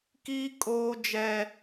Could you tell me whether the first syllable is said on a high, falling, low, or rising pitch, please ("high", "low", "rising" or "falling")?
high